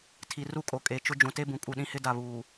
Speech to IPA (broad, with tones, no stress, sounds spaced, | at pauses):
tʰ i˨ r u˦ kʼ o˨ kʼ e˨ t͡ʃ ʊ˦ d͡ʒ ũ˨ t e˦ b ũ˨ kʼ u˨ ɗ ĩ˦ h ɪ˦ d a˨ β uː˨